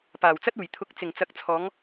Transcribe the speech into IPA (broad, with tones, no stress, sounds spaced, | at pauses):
p aː˨˩ w t͡s ɐ˥ t̚ uː˨˩ j t̪ʰ ʊ˧ k̚ t͡s ɪ˨˩ ŋ t͡s ɐ˨˥ k̚ t͡sʰ ɔː˨˧ ŋ